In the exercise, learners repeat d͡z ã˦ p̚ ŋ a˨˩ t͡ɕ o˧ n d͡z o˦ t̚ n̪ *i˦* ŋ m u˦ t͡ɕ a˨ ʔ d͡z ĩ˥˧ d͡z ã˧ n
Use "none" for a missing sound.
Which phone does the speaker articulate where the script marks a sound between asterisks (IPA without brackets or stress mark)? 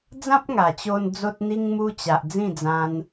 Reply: i˦